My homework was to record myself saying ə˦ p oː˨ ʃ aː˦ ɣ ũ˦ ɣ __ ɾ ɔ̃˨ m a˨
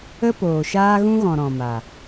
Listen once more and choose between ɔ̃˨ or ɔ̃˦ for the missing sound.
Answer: ɔ̃˨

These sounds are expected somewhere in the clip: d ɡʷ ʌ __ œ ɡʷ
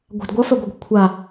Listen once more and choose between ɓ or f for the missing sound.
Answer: f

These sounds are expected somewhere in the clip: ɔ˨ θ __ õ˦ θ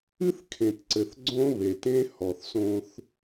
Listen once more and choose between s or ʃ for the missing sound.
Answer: s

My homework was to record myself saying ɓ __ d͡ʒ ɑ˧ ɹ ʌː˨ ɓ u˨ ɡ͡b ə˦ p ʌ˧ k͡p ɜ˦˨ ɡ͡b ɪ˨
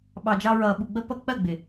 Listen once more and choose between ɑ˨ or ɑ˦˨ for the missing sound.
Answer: ɑ˨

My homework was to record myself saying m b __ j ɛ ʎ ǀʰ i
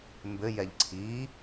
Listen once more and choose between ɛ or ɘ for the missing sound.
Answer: ɘ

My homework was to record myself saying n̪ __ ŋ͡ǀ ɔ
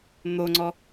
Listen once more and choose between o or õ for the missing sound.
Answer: o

